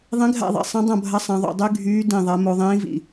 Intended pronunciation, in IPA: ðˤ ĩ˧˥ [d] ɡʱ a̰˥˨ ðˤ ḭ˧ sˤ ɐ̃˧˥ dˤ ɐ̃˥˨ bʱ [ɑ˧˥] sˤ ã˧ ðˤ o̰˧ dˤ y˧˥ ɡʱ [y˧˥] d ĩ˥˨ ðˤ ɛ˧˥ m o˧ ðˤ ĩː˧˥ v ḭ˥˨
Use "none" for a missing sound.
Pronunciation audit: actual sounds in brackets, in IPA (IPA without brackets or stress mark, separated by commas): none, ɐ˧˥, yː˧˥